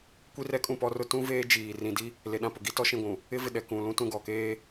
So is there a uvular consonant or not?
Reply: no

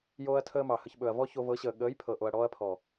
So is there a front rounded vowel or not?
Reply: no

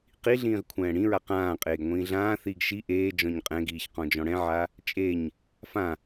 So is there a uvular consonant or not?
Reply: yes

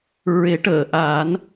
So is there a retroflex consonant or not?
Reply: yes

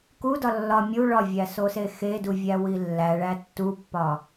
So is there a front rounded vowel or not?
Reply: no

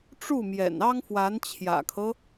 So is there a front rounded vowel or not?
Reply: no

